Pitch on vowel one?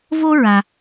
high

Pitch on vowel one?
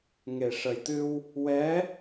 low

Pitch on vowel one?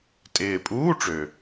low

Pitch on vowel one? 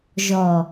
low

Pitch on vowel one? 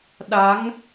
rising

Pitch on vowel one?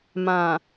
low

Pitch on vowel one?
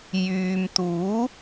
low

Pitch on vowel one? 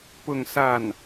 falling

